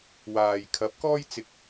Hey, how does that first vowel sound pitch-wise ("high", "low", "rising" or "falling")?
low